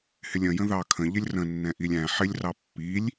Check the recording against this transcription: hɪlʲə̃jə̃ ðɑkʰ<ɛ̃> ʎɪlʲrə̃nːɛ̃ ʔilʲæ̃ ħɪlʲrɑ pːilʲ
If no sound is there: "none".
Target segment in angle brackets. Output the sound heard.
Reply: ə̃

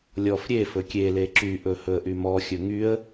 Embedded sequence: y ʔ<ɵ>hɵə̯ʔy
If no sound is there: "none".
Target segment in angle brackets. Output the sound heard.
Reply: ɵ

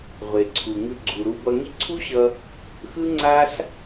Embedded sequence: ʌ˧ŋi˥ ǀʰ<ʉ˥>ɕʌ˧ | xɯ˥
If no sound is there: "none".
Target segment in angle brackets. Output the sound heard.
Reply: u˥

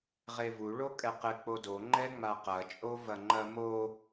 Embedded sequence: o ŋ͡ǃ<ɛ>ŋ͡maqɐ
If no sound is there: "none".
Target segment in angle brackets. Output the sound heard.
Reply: ɛ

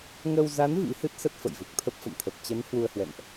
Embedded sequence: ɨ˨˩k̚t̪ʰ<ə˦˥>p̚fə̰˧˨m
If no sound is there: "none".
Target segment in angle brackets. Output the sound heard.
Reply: ə˦˥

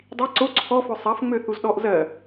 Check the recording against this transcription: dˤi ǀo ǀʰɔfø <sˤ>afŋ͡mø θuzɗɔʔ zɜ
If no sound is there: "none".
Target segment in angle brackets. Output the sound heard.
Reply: sˤ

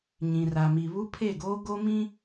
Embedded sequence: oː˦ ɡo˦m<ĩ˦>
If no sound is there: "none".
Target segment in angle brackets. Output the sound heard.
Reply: ĩ˦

